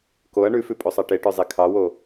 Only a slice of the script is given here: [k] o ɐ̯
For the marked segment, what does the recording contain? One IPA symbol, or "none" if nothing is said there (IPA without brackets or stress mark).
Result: k